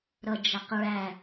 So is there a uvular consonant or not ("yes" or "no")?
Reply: yes